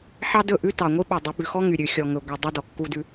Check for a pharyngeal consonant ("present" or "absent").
present